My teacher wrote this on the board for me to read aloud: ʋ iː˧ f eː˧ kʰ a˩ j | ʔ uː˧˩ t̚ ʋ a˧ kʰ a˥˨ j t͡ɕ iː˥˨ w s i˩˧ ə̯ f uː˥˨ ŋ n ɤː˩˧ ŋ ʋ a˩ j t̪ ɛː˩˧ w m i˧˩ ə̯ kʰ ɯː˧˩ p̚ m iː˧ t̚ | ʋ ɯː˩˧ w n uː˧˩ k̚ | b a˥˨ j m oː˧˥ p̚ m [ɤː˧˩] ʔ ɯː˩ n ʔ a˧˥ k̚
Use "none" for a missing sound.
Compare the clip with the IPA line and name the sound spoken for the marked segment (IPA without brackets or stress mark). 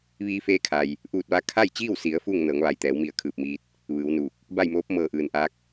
ɤː˧˩